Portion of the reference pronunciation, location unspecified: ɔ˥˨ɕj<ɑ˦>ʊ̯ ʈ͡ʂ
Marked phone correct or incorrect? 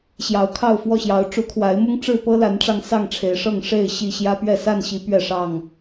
incorrect